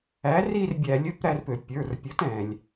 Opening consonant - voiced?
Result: yes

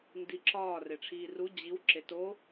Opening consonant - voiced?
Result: yes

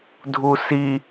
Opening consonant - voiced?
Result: yes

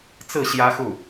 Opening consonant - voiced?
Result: no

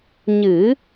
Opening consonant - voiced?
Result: yes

